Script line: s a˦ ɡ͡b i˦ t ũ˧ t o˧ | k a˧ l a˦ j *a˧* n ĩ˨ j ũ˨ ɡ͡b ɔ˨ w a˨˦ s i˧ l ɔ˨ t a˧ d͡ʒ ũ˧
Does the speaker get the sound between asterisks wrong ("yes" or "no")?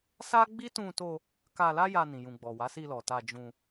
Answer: no